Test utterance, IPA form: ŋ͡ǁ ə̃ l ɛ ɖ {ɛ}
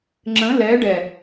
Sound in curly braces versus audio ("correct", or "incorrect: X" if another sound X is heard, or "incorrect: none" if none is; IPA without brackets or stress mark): correct